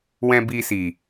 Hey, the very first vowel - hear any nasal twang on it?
yes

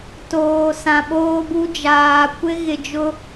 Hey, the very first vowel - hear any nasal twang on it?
no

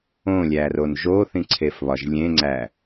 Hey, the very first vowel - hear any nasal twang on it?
yes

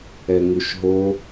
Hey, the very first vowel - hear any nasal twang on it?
no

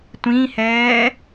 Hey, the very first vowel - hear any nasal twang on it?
yes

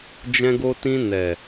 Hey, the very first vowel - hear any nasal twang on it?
yes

